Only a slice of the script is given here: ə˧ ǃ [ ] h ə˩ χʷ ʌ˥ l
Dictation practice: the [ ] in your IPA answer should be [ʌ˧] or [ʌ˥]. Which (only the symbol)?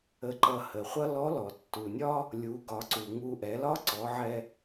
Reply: ʌ˧